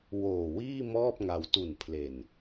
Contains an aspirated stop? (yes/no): yes